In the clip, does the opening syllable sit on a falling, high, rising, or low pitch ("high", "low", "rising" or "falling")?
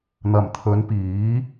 low